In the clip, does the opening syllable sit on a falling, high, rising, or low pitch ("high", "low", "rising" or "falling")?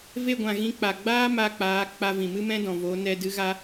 falling